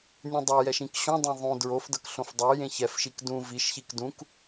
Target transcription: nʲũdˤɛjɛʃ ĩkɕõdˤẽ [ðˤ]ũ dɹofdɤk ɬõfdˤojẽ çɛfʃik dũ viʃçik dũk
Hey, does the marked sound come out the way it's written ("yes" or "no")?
yes